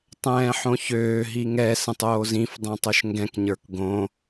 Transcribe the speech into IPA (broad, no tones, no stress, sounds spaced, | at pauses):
tˤ ɛ̃ː ħ õ ç øː ɦ i ŋ ɛ s ə̃ tˤ oː z ĩ f dˤ ɛ̃ tˤ o ʃ ŋ ɡ ɛ̃ k ɲ ə˞ k ɡ õ